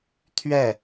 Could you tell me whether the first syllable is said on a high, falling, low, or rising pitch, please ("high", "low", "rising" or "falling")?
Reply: falling